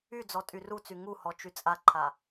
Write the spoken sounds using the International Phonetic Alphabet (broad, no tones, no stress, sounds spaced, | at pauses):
y d͡z ɔ tʼ y r u t͡s y ŋ u h ɔ t͡ʃ y t͡sʼ a ǃʰ a